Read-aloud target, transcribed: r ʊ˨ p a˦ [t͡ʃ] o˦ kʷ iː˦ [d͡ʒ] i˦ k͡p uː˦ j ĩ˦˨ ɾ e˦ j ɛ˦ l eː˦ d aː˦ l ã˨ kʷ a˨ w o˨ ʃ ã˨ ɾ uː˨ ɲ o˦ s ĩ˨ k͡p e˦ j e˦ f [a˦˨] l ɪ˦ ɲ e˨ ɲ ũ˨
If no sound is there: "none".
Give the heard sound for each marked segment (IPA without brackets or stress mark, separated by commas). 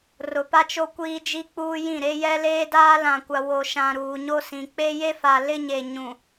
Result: t͡ʃ, d͡ʒ, a˨